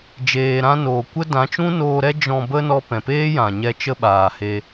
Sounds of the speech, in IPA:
d͡ʒ eː˨ ɾ ã˧ n oː˨ kʷ ə˦ d ã˨˦ t͡ʃ ũ˦ n oː˧ ɾ ɛ˦ d͡ʒ ɔ̃˧ b ə˦ n ɔ˧ p ɛ̃˨ p eː˦ j ã˨ ɲ ɛ˧ t͡ʃ ə˦ ɓ aː˨ h e˧

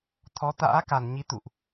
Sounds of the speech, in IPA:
t̪ʰ ɔ˨˦ t̪ a̰ː˧˥ k a˧˩ n ɲ i˨˦ t̪ ṵ˧˨ ʔ

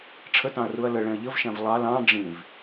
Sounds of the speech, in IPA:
ʈ͡ʂʰ ə t ɑ̃ ɐ̯ r u ɐ̯ l ə ɭ ɛ̃ ɐ̯ ʎ ə v ʃ æ̃ v lˠ ɑ l ɑ̃ ɖ͡ʐ ĩ v

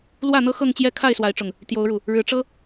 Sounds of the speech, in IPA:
l w ä˥˨ n̪ ɤ˦ x ɤ˥˨ ŋ t͡ɕ j ɛ˥˨ kʰ a˥˨ ɪ̯ s w a˨˦ ɪ̯ ʈ͡ʂ ʊ˨˩ ŋ | t̪ j o˨˦ ʊ̯ ɻ u˨˩ | ɻ ɻ̩˨˦ ʈ͡ʂ ɤ˦

